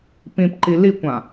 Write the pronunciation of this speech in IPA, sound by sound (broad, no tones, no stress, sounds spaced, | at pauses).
p ĩ p ǃ i l i kʷ ã